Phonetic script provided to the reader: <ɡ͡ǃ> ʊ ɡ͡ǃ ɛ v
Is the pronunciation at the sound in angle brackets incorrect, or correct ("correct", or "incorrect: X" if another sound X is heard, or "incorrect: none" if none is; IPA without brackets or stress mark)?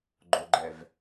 correct